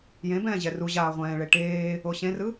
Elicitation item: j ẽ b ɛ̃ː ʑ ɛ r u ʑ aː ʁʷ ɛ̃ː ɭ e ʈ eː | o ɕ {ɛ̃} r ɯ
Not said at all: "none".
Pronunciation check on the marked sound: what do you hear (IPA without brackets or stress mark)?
ẽ